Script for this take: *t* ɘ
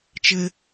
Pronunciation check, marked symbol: incorrect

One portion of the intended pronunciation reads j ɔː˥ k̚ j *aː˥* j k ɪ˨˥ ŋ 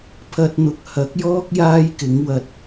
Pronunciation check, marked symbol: correct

